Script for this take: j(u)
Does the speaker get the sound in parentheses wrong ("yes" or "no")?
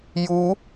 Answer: no